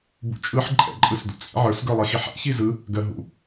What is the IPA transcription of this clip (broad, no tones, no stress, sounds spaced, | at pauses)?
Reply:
b ṵ t͡ʃʼ ɯ ħ ǃʼ ɛ̰ ǃʼ ɯ s d ṵ t͡sʼ ḭ ʕ ə˞ s ɡ ə˞ lˠ i x i ħ ɛ̰ ç i z ɯ | ɡ ɜ ɦ ṵ